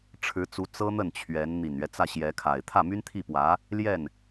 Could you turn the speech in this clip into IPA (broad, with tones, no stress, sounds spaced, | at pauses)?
ʈ͡ʂʰ ɻ̩˧˥ t͡s u˧˥ t͡s ɤ˥ n̪ ə˥˩ n t͡ɕʰ ɥ ɛ˧˥ n n̪ i˨˩ n ɥ ɛ˦ t͡s ä˥˩ ɕ j ɛ˧˥ kʰ a˨˩ ɪ̯ t̪ʰ ä˥˩ m y˥ n t̪ʰ i˥˩ p w ä˧˥ | l j ɛ˥˩ n